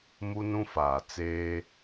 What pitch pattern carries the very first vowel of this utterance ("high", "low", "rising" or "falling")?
high